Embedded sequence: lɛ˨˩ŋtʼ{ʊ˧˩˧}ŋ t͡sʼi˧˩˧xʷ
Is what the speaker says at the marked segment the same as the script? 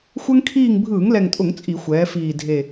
yes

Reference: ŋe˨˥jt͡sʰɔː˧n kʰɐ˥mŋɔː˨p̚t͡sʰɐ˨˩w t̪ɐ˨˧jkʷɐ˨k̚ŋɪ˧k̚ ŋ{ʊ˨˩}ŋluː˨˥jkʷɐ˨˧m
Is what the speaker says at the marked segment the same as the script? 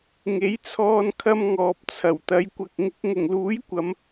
yes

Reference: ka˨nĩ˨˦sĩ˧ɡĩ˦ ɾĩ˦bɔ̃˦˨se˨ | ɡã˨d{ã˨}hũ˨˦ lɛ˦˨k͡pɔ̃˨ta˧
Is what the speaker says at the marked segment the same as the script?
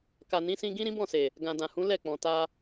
yes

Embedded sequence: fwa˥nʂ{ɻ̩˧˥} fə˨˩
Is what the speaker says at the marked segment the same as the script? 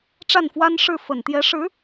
no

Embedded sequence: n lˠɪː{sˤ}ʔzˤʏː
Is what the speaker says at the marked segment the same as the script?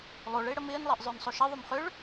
no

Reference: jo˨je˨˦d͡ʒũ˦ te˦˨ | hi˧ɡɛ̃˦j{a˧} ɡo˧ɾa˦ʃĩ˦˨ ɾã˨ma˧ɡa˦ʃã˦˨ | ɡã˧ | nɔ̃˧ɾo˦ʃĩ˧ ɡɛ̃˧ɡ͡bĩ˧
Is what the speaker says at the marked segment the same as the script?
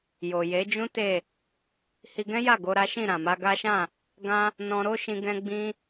no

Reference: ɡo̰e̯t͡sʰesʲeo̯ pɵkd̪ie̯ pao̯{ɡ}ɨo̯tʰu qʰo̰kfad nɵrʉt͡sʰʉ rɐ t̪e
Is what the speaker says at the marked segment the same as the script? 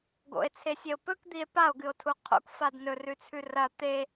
yes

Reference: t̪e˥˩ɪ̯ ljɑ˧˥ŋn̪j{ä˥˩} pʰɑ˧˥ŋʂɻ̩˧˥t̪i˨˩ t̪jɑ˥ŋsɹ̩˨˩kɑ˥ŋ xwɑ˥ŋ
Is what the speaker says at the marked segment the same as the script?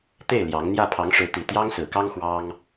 yes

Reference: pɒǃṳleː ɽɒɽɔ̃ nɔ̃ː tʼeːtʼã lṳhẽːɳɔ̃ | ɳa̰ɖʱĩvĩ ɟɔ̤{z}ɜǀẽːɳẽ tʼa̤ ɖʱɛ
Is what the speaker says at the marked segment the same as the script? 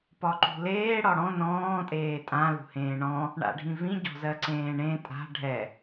yes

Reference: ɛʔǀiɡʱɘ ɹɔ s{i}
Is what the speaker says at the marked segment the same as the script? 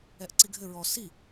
yes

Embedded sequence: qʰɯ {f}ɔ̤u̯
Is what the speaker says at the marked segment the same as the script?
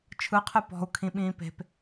no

